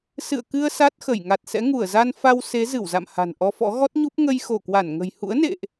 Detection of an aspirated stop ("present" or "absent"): absent